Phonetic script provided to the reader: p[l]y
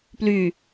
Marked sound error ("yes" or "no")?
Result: no